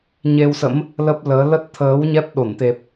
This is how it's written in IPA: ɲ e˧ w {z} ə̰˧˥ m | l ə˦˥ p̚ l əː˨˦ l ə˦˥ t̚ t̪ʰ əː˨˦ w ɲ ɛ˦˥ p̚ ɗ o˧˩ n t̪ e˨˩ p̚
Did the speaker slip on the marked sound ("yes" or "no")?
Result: yes